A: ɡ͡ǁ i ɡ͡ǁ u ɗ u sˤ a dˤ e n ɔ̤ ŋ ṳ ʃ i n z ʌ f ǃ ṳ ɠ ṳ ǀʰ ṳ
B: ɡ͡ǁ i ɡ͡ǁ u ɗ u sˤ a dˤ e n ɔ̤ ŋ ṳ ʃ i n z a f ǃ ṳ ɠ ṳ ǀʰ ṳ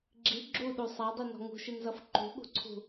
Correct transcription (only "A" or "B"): A